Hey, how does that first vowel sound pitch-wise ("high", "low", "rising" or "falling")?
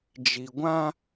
low